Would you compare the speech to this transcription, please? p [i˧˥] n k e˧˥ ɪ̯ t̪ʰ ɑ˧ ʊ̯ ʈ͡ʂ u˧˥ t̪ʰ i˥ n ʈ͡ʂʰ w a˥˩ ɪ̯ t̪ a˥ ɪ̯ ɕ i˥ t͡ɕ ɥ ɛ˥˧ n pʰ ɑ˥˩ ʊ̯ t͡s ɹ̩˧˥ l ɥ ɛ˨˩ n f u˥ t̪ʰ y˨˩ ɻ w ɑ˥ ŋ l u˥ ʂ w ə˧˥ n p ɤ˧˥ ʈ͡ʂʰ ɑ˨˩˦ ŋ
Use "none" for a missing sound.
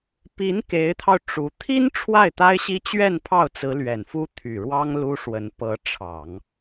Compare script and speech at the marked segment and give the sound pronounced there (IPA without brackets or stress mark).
i˧˥